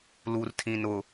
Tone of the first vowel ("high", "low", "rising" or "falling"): low